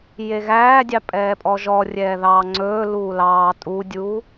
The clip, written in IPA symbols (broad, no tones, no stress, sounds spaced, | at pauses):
j e ɣ æː dʲ ɑ pʼ ɛː pʼ ɔ ʒ ɔ rʲ ɛː ð ɑː ŋ͡ǀ ɵː l uː l ɑː tʼ u dʲ uː